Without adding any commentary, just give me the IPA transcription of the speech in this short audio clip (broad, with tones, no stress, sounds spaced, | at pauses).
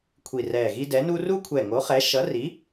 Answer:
kʷʰ i˧˩ r ɛː˧˩ ɣ i˥ d ɛ˨˥ n u˥ r u˥ kʷʰ ɛ˧˩ ŋ o˨˥ χ ɛ˨˥ ʃ ʌ˨˥ r i˨˥